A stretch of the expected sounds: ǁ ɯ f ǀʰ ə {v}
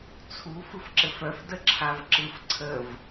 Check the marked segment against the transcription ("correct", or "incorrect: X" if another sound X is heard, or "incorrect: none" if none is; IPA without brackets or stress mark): correct